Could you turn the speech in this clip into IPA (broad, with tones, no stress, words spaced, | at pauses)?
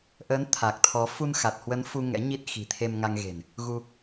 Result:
ʔəː˨˦n t̪ʰa˨˩k̚t̪ʰɔ˨˦ fu˧nxa˨˩t̚hwə˨˦n fu˧ ŋɛ̰˧˥ɲi˦˥t̚ xi̤˨˩t̪ʰe˧mŋa˧ŋ ɣe̤˨˩n | ɣu˧